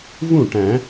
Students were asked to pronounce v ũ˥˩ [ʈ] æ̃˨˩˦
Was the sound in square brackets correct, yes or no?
yes